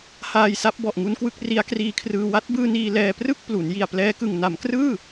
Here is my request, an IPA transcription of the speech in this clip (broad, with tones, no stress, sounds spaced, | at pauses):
h aː˧ j s a˦˥ p̚ b ɔ˨˩ ʔ ŋ u˦˥ n k w ɯ˦˥ k̚ r i˦˥ a̯ k r iː˦˥ kʰ r ɯː˧ w a˦˥ t̚ b ɯː˧ n iː˧ l ɛː˧ p r ɯ˥˩ k̚ p l u˩˦ n j i˨˩ a̯ p l ɛː˦˥ k ɯ˨˩ ŋ n a˩˦ m k r ɯː˥˩